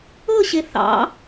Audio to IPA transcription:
ɤ ɕ e θ ɑ̰

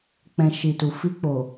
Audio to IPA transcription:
k͡p ɛ̃˨ ʃ i˨ t u˨ f i˧ k͡p o˨

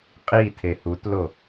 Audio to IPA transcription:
qʼ i tʰ e h u t l o

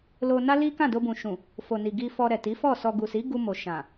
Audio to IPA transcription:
l o˧ n a˦ l i˦ k ã˦˨ d o˧ b ũ˨ ʃ ũ˨ | f o˨ n i˨ ɡ i˧ f ɔ˧ ɾ ɛ˨ t i˨˦ f ɔ˦˨ s ɔ˧ ɡ u˨ s i˨˦ ɡ u˧ m o˨ ʃ ã˨

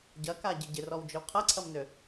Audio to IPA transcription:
ɟ ɐ k a ɟ ɪ ɟ ɪ r ɔ w d͡ʒ ø w qʰ ɐ ǀʰ ɐ m n ø

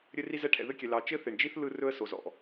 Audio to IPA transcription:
ɾʲ ɘ˥ r i˥ z ɛ˥ ʈʰ ɛ̰˩ ð ɘ˥ kʲ ɛ˩ l ɑ˩ t͡ʃ ɘ˥ θ e˩ ɳ d͡ʒ i˥ θ l ɯ˥ r ɵ˥ ə̯ s o˩ z ɔ̰˩

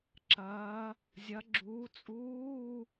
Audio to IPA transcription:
ǁ ɐː˨˦ | zʲ ɐ˨˦ ɡ͡ǁ uː˨˦ t͡sʼ uː˧˥˧

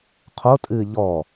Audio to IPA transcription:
qʰ o tʼ ɨː ʎ ɔ

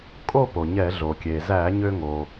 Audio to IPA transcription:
kʼ o˥˧ p o˩ ɲ ɛ˧˩˧ ɮ o˩ kʲ e˩ z æ˧˩˧ ɲ ø˧ ŋ o˩

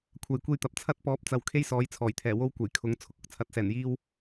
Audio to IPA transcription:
kʷʰ ɐ˨ j kʷ e˧ j t̪ ɐ˨ p̚ t͡sʰ ɐ˧ t̚ p ɔː˨˥ p̚ t͡s ɐ˨˧ w kʰ e˥ j s ɔː˨˥ j t͡sʰ ɔː˨˩ j t̪ʰ ɛː˨˩ w o˥ w kʷ ɐ˨˩ j kʰ ʊ˨˥ ŋ t͡sʰ ʊ˨ k̚ ʊ˨ k̚ t͡sʰ ɐ˨˥ t̚ s ɛː˨˩ n j iː˧ w

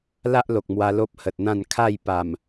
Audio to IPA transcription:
l a˦ ʔ l o˨ k̚ m w a˧ l o˦ p̚ h ə˨ t̚ n̪ ã˥˧ n kʰ a˥˧ j p a˨˩ m

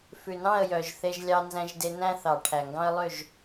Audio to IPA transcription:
f ʉ˨ n ɑ̃˦˨ ə̯ j œ˨ ʒ θ e˦ ʒ lʲ ɑ˦ n z æ̃˦ ʒ d e˦ n æ̃˦ θ ɑ˨ ʈʰ æ˨ ŋ ɡ ɑ̃˦ ə̯ lˠ ø˦˨ ʒ

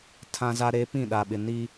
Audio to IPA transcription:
tʰ ã˦ z a˦ ɾ e˦ p ĩ˦˨ ɗ a˨ ɓ ɪ˨ n i˦

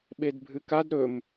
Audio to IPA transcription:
ɓ e d bʱ ɨ k a d ɾ ɵ m

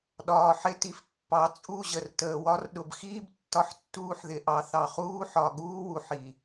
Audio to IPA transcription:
ɗ ɒː˨ ħ ɪ˦ t i˨ f pː ɑ˨˦ t͡sʼ u˦˨ ʑ ə˨ r t əː˨ w ɒ˦ r ɗ ʊ˨ b x iː˦ b tː ɒ˦ ħ tː uː˦ ħ ð ɪ˨˦ ʔ ɑ˨˦ θ ɑ˨ χ uː˦ ħ ɒ˨ ɠ uː˦ w u˨ ħ i˨

